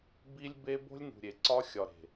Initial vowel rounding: unrounded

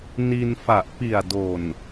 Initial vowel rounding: unrounded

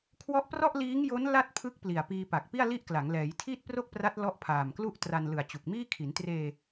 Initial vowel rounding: rounded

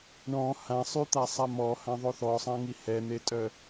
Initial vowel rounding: rounded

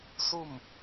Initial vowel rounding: rounded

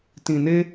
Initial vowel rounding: unrounded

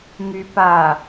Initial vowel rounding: rounded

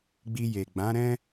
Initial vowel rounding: unrounded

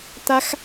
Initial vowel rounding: unrounded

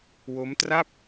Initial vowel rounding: rounded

